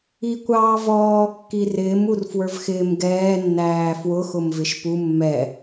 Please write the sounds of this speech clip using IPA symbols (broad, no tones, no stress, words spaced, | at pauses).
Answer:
ikʷɑːvɔː kːirɪːm urfwə˞vxɪːm ɡɛː nːæːfwʊ xʊmvɪʃpu mːɛ